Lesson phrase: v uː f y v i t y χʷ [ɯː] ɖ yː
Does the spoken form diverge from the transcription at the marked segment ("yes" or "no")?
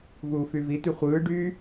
no